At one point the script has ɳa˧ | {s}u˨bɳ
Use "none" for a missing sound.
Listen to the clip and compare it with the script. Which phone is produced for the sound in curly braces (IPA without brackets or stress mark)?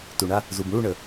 z